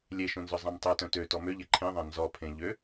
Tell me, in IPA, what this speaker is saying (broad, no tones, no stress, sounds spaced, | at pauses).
lʲ e ʃ õ n z œ zˤ ã m tˤ œ t œ̃ t ø t ɔ m ø ʎ e ǃʰ ẽ ðˤ ã n z ɔ pʰ ẽ ʎ ø